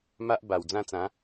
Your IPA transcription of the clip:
ma˦ʔba˨˩w d͡zã˥˧t͡sã˨˦

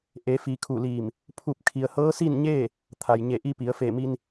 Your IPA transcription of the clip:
ʔe˩˧fi˩˧ kʰu˧˩liː˧˩m | pʰu˧˩p̚ kʰi˩ə̯hɤː˧˥si˥˨nɲeː˥˨ | t̪ʰa˩jɲe˧˩ʔi˧pi˩˧ə̯ fe˧˩mi˧n

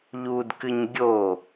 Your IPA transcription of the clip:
ʎudkɨɲ ɡʲo

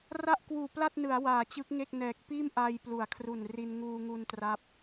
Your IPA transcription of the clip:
ra˥˩ʔkwuː˨˩pla˥˩t̚nɯ˩˦a̯ waː˨˩t͡ɕɯ˦˥k̚ŋe˥˩k̚ nɛː˨˩k̚ piː˥˩m ʔaː˧jplu˩˦a̯kʰru˨˩nri˧n ŋuː˧ŋu˧n tra˦˥p̚

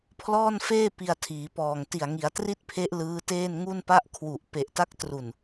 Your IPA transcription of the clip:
pʰlɔː˥˩nfeː˥˩ pi˧a̯tʰiː˩˦pɔː˨˩ŋ ti˨˩a̯ŋi˩˦a̯tri˥˩t̚pʰe˦˥ʔ lɯː˦˥teː˥˩n ŋu˥˩npa˥˩ʔ kʰwu˨˩ʔ pe˨˩ʔta˦˥k̚ tru˨˩n

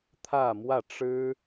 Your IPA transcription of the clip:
t̪ʰä˥˧mwä˥˩ʈ͡ʂɻ̩˥

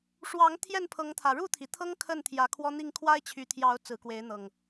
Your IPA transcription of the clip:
ʂwɑ˨˦ŋ t̪ʰjɛ˥˨npʰɤ˨˦ŋt̪ʰä˨˩ ɻu˥˨t̪ʰi˩t̪ʰɤ˦ŋ kʰə˥˨nt̪ʰjä˨˦kʰwɔ˦n̪i˥˨ŋ kʰwa˦ɪ̯t͡ɕʰy˨˦t̪ʰjɑ˨˦ʊ̯ t͡sɹ̩˨˦kwe˨˦ɪ̯n̪ɤ˨˩ŋ

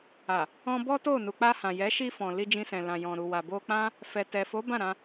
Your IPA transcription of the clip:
a˨ | ɔ̃˧bɔ˦to˦˨ nu˨k͡pa˧hã˨jɛ˨˦ ʃi˧fɔ̃˨ li˧d͡ʒĩ˧sɛ̃˨ lã˨jɔ̃˨ɾu˨wa˨ bo˧k͡pã˦ | fɛ˨tɛ˨fo˨˦ bã˦˨ɾã˧

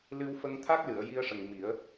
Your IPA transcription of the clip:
lɨ˧wfə˧ŋt̪ʰa˦˥k̚ lɨ˨˩˨ə̯ ji˧ə̯ʂə˨˩ŋ mi˨˩˦ə̯

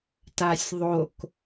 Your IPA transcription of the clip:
tasʲðˤok

